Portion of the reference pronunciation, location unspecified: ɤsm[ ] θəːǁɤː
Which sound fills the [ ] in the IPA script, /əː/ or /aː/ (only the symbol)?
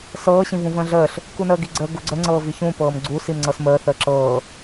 əː